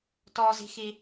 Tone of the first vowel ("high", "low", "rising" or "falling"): high